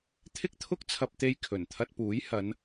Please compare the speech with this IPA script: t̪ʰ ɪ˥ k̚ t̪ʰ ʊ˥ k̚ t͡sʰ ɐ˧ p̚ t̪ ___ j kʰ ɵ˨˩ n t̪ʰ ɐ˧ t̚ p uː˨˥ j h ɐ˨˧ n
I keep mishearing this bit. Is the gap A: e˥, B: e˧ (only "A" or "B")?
B